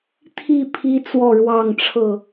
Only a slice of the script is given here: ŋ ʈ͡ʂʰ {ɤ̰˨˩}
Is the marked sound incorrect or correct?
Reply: incorrect: ɤ˥˨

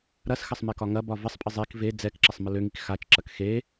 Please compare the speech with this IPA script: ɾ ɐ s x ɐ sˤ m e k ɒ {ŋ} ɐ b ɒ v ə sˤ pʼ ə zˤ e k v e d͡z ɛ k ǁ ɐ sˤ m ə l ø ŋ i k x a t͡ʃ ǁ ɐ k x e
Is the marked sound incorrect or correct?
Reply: correct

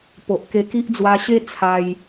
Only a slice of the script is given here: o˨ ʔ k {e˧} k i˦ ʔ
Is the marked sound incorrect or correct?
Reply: correct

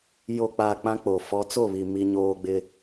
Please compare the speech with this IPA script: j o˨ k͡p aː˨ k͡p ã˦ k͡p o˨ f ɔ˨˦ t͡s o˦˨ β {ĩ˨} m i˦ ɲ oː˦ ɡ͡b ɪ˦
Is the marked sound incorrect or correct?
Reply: incorrect: i˨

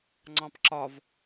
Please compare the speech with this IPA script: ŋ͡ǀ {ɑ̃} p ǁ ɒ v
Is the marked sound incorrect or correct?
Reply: correct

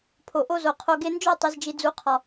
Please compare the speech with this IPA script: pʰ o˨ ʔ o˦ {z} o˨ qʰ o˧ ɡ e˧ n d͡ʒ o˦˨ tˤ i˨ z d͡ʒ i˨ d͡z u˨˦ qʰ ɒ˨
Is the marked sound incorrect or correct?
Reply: correct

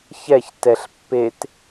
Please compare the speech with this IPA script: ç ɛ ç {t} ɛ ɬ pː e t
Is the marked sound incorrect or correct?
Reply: correct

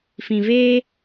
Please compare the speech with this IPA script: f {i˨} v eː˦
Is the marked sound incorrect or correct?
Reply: incorrect: ĩ˨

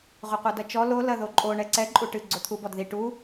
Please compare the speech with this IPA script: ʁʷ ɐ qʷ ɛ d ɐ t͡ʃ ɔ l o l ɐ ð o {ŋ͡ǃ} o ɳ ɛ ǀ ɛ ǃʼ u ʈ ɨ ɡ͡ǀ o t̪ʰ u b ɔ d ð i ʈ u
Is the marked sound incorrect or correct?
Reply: incorrect: ǃʼ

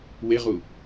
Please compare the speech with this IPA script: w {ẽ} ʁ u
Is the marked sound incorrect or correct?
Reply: incorrect: e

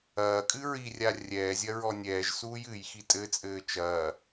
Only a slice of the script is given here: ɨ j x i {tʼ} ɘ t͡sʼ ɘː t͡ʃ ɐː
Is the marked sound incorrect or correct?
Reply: correct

